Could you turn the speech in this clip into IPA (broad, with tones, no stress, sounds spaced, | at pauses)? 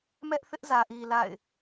m ɛ˦ ʔ θ ɪ˦ ʔ z ä˨ ʔ i˨ l a̰˦˨ ɪ̯